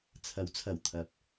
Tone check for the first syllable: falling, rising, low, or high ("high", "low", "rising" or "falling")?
rising